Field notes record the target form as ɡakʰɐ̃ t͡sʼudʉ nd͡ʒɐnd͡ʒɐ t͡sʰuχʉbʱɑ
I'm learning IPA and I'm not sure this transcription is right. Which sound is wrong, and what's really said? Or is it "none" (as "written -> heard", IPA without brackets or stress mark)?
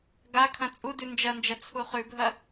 ɑ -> ɐ